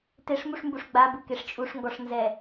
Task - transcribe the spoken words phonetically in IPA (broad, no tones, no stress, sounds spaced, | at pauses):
t e ʂ m u ʂ m b u ʂ ɡ͡b a b u k e ʂ t͡ʃʼ u ʂ ŋ ɡ ɔ ʂ n z ɛ